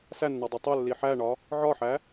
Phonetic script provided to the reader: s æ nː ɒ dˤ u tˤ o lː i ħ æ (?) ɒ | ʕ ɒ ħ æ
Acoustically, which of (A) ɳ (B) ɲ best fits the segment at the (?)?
A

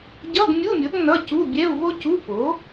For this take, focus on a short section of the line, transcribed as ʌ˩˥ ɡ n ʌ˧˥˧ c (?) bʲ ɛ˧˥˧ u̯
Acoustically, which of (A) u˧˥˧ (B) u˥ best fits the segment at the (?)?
A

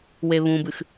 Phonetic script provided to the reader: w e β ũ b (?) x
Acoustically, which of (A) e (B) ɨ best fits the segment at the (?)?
B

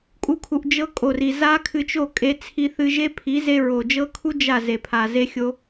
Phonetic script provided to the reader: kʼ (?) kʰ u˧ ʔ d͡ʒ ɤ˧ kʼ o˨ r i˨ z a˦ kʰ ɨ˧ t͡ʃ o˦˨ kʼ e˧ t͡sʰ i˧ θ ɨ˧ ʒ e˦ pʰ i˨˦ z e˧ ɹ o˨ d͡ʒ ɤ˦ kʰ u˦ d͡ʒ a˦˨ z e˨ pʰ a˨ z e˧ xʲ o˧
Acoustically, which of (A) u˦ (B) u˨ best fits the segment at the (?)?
A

